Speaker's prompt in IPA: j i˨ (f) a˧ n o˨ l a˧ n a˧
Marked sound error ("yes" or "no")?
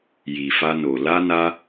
no